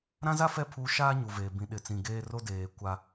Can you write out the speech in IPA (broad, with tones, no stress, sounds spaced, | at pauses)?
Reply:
ɾ ã˦ z a˦ f ɛ˦˨ pʰ uː˦ ʃ aː˦ ɲ u˨ v eː˨ b ĩ˨ ɗ ɪ˨ t͡s ĩ˨ ɡ eː˦ r o˦ d eː˨ kʷ a˦